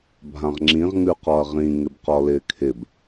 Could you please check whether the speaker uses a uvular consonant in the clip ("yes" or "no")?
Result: yes